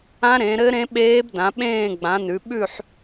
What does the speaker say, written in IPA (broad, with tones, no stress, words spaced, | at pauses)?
ã˦˥ɾẽ˨˦ɾɘ˦˥ ɾẽ˦˥ɓeː˦˥bdã˨˦ ɓẽː˥˧ɡ͡bã˨˦nʉ˨˦ ɓʉ˥˧ħ